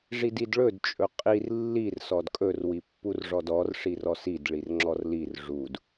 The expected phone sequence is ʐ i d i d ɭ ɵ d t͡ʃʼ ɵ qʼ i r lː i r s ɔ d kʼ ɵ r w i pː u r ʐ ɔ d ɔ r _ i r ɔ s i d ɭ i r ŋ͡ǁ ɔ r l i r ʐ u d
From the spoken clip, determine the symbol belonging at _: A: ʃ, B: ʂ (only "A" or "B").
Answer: B